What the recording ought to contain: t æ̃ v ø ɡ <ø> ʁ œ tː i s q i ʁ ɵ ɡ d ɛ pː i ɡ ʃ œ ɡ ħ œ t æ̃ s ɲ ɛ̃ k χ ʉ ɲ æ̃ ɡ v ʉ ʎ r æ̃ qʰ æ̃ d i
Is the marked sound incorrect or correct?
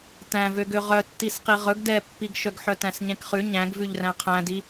correct